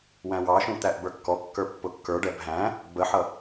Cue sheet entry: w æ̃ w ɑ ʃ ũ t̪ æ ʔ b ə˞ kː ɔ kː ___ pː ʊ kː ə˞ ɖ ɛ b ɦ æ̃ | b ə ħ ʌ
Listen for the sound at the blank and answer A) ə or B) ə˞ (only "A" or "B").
B